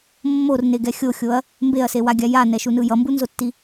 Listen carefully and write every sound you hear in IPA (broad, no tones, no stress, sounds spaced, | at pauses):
mː o r n e ɡ ɛ xʲ o xʲ o ɐ̯ | m b e ɐ̯ s e w a ɡʲ a j a n ɛ ʃ u n ɯ j ʌ m b u n z o tː i